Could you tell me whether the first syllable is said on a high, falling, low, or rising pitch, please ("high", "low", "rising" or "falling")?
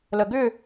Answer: low